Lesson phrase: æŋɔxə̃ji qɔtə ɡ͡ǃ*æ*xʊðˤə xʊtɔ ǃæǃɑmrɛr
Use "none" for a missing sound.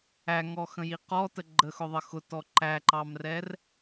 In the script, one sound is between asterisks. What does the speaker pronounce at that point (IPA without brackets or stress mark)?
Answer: ə